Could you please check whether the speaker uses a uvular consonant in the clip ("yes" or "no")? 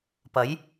no